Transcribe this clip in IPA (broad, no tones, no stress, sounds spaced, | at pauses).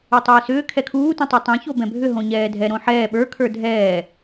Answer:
u tˤ ʏː s ʏː kʰ ɛ kʰ uː t ũ tˤ o tˤ ɛ̃ ç o b ɛ̃ bʱ ʏ ɦ õ ɲ ɛː dʱ ɛ ɾ õ ħ ɛː ɓ ə˞ kʰ ə˞ dʱ ɛː